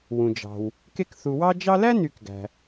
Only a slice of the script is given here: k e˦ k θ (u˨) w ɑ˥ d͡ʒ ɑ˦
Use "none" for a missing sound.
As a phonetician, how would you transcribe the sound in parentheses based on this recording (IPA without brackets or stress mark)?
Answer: u˨